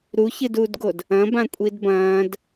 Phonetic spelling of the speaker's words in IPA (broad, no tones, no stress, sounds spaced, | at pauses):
ɾ u ç ɨ d uː d ɡ o d | ɐ̃ b ã kʷʼ i d b ɐ̃ː d